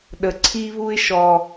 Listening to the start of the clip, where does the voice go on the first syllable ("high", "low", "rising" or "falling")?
low